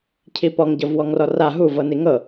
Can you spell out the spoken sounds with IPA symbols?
cʰ i p ɔ ŋ ɟ ɤ v w ɔ ŋ r ɔ r a ɦ u v ɤ n i ŋ ɤ

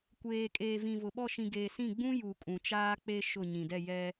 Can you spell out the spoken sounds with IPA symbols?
kʷ eː˨ kʼ eː˨ v ĩ˨ v ʊ˨ ɓ ɔ˦˨ ʃ ĩ˨ ɡ eː˨ s ĩ˦˨ ɡ͡b ũ˦ j u˨ kʼ ũ˨ t͡ʃ aː˦ k͡p e˦ ʃ ʊ˦˨ ɲ ĩ˨ d ɛ˦˨ j ɛ˦

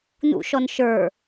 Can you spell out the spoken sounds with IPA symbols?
n ṵ ʃ ɔ n ʃ ə˞

